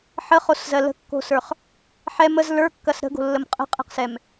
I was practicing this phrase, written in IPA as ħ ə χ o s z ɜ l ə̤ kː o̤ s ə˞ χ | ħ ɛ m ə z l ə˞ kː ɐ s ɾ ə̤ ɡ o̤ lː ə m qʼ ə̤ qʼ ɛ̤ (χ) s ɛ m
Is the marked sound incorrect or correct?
incorrect